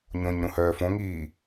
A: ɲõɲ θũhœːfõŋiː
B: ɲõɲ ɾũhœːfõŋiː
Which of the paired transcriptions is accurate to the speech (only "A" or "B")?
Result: B